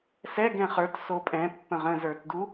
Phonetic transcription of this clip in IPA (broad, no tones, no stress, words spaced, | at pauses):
sɛɡɛ̃ χə˞t sopʼɛ̃ pːə̃ʁə̃zə˞tdu